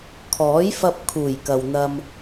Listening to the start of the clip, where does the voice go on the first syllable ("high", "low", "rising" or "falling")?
rising